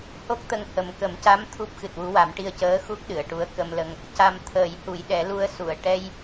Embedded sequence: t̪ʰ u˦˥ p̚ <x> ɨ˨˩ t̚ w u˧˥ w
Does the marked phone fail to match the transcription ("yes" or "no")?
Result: no